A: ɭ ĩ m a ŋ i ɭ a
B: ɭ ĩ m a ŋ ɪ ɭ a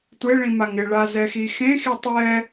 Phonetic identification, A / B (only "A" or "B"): B